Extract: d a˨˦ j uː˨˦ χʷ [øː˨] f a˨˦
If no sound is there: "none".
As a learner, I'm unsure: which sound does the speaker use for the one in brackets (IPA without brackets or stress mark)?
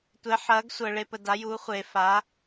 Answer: eː˨